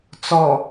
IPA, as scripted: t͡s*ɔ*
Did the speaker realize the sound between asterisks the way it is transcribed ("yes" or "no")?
yes